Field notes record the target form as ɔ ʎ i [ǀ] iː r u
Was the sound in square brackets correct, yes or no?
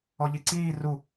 yes